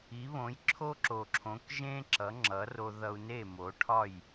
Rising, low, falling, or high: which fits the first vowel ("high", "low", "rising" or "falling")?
rising